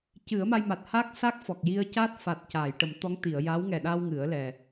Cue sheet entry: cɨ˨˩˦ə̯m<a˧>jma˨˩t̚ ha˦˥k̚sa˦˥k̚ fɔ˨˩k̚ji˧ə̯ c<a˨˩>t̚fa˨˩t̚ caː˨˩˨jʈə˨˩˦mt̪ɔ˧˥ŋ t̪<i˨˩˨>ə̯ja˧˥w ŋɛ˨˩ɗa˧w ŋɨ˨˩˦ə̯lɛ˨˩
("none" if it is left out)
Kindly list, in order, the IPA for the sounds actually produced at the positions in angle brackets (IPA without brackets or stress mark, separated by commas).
a˧, a˦˥, i˨˩˨